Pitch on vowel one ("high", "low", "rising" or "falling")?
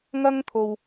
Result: high